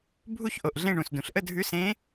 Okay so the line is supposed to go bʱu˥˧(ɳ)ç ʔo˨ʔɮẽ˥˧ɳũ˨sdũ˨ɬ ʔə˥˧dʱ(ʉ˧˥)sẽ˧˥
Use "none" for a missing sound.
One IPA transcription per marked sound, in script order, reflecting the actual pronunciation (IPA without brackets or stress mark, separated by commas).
none, ʉ˧˥